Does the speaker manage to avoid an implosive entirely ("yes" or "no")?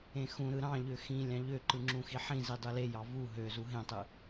yes